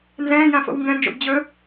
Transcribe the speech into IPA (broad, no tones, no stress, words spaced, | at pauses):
nzɛ̃ːjã fo̰wŋɡɛ̃nd͡ʒo̰b d͡ʑɵ